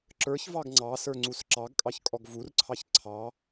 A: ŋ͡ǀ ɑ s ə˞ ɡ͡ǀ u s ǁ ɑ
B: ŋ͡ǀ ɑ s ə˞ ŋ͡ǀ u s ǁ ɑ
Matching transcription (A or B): B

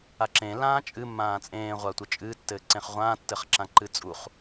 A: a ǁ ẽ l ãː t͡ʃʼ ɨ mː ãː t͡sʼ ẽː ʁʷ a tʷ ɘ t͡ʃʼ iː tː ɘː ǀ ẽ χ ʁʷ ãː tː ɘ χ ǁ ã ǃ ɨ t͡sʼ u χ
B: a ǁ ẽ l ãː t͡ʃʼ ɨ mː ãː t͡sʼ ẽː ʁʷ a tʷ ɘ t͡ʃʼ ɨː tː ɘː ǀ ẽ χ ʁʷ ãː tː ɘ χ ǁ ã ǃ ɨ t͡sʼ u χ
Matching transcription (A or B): B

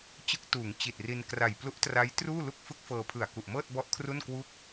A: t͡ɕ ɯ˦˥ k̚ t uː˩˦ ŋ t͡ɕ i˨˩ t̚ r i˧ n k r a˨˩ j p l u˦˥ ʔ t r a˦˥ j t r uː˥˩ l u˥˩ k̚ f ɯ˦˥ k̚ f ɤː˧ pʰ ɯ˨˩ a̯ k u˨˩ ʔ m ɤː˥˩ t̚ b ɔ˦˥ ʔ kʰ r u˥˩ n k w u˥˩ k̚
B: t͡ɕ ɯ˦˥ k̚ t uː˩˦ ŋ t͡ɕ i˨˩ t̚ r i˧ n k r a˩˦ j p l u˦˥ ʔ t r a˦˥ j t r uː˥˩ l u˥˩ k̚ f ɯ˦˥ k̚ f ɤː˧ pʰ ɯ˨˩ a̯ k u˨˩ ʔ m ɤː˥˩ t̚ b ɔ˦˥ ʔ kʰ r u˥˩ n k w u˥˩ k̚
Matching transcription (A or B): A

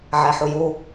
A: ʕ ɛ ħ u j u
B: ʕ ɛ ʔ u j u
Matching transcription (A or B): A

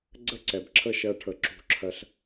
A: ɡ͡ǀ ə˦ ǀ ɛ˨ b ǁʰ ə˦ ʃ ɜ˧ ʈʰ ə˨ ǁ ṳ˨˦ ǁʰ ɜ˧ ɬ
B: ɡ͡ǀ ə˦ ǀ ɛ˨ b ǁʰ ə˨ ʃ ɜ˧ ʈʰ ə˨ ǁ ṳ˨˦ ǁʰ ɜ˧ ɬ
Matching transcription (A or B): A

